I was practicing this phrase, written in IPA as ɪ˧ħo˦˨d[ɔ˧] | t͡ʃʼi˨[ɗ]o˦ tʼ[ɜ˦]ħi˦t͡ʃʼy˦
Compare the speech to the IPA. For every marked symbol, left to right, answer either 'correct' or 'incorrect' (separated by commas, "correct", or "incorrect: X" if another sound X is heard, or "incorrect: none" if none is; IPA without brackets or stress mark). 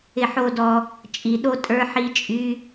correct, correct, incorrect: ə˞˦